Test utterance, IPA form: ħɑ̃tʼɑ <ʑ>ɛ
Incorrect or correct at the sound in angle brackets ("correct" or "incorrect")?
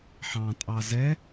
incorrect